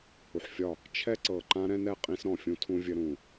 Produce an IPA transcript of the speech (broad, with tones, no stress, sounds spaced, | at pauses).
h u˨ ħ fʲ ɒ˦˨ | t͡ʃʰ ɛ˦ ǀ ɤ˨ ǃ ã˦ ɾ ɛ̃˦ n ɛ˦˨ qʼ ĩ˦ s ɾ ɔ̃˨ fʲ ũ˦ tʰ ũ˦ vʲ ɘ˦ ɾ ũ˦˨